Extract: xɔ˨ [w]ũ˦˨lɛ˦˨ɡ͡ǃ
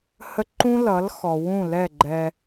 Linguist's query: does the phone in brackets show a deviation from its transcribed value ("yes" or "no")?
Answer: no